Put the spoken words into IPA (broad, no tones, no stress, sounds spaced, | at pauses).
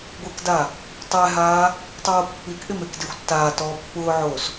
ɡʷ e k d a | tˤ ɛ ɦ aː | tˤ oː pː i k ʔ ɪ m e k d e xʷ tː aː t ɔː pː ʊː ʕ oː s